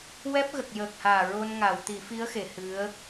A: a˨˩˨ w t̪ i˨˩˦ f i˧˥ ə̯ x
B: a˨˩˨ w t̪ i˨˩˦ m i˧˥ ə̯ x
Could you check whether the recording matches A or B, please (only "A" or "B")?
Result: A